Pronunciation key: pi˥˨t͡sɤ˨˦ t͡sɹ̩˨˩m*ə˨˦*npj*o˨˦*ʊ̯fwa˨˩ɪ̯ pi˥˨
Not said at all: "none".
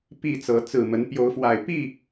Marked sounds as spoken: ə˨˦, o˨˦

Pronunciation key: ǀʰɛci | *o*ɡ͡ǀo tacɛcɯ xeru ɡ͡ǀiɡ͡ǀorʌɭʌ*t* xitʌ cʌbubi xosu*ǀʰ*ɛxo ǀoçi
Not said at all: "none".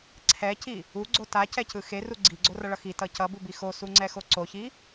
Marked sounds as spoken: u, none, ŋ͡ǀ

